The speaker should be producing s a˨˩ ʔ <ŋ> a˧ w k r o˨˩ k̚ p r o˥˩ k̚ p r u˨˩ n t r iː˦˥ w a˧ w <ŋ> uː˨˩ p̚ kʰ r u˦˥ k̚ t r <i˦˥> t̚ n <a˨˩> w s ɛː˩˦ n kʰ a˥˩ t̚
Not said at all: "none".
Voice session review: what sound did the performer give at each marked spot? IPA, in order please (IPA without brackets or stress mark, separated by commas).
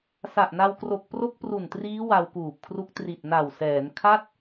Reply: n, k, i˨˩, a˨˩